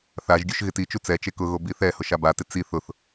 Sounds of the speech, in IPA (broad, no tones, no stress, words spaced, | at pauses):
θaʒɡʲuʃ ɣɪtit͡ʃu t͡sɛt͡ʃe kʊɣo biθɛhʊ ʃabatɪ t͡si θʊθ